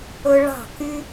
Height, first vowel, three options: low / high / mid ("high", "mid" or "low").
mid